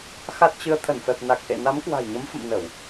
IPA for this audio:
x a˦˥ t̚ t͡ɕ ɨ˧ ə̯ t̪ʰ ə˧˩ n f ɛ˨˩ p̚ n a˨˩ k̚ ʔ ḛ˧˨ n a˨˦ m k w a̤˨˩ j ɲ ə˨˦ m f ə̰˧˨ m n ə˧˩˨ w

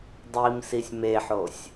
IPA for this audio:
dˤ i m s i sʲ m e ħ o sʲ

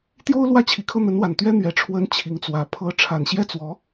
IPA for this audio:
t̪ j o˥ ʊ̯ l w ä˥˩ t͡ɕʰ i˨˩ kʰ ɤ˥˩ n̪ ə˧˥ n w a˨˩ n t̪ ɥ ɛ˥ n̪ ɥ ɛ˧˥ ʈ͡ʂʰ w ə˥ n t͡ɕʰ i˧˥ ŋ t͡s w ä˧˥ pʰ ɤ˧˥ ʈ͡ʂʰ a˨˩ n ɕ j ɛ˥˩ t͡s w ɔ˧˥

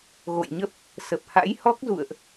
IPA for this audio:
ɣ o̰˧˨ j ɲ ə˦˥ p̚ | s ə˨˩ p̚ h a̰˧˥ j h ɔ˦˥ k̚ z ṵ˧˨ ə̯ ʔ

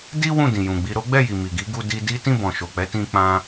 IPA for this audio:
d i˦ w ũ˦˨ d ĩ˨ j ũ˨ ɡ͡b i˧ ɾ o˦ ɡ͡b ɛ˦˨ j i˨ m i˨ ɡ i˨˦ ɡ u˧ d i˧ d i˦ t ĩ˦˨ b ɔ̃˨ ʃ o˨ k͡p ɛ˨˦ t ĩ˧ k͡p ã˧

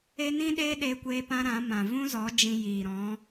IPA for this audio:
e˦ n ĩ˦ ɗ eː˦ ɗ e˧ kʷ eː˧ p ã˧ ɾ ã˨˦ m ã˨ v ũ˦ z ɔ˨˦ d͡ʒ ĩ˧ j iː˨ ɾ ɔ̃˨˦

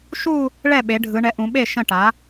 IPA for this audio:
ʃ u˥˧ | ɭ ɛ˥˩ ɓ e˩˧ ɖʱ ɯ˩˧ ɳ ɛ˩˥ ʔ ũ˩˧ ɓ e˥˩ ʃ ə̃˥˩ ʈ a˩˥

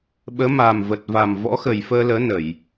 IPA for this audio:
ɓ əː˨˦ m aː˨˩ m v ə˨˩ t̚ v a˨˩ m v ɔ̰˧˥ x ə˨˩ j f əː˧ l əː˨˦ n ə˧˩˨ j

